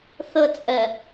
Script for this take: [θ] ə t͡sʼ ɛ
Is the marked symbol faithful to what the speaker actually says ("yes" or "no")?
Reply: yes